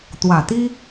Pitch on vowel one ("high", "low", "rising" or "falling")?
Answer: low